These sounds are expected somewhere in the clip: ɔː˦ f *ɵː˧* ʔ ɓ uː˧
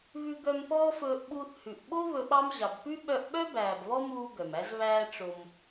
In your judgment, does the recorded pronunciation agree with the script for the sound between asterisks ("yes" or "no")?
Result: yes